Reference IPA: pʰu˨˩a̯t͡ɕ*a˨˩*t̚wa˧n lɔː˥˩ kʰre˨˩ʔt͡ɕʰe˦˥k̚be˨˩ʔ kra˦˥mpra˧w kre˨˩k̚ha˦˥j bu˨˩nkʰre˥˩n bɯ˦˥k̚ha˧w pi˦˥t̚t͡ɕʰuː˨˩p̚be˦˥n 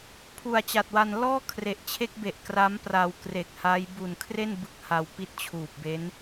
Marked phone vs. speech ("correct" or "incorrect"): correct